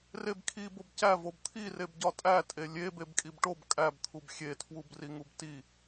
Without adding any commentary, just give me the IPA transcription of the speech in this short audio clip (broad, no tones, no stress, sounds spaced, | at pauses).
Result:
r e b kʰ i b o b c æ v o b t̪ʰ i r e b ɟ ɒ tʼ æ tʼ e lʲ e b e b kʼ i b ʈ o b kʼ æ b t̪ʰ u b xʲ e tʰ w u b r i ŋ u b t i